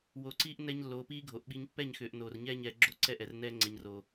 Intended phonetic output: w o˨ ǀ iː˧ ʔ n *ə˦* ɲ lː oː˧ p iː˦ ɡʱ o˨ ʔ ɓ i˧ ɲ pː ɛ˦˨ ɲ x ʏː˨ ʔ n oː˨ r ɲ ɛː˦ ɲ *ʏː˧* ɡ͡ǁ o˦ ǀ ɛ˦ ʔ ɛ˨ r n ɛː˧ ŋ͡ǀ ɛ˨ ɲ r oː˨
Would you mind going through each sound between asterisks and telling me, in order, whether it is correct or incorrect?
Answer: incorrect: ɛ˦, incorrect: ɛː˧

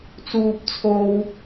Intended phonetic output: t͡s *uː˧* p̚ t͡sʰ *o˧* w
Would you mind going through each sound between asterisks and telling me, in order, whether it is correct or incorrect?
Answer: correct, correct

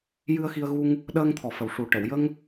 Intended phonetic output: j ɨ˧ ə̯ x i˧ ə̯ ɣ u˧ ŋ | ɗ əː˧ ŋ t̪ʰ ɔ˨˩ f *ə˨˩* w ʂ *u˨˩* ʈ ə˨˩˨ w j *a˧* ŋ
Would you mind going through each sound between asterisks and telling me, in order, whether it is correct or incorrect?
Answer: correct, correct, incorrect: ə˧

